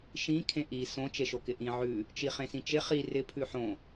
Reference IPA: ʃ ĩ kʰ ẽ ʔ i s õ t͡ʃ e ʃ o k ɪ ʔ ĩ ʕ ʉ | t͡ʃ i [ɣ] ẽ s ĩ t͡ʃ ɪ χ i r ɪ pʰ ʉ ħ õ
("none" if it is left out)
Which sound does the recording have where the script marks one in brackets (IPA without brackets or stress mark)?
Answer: χ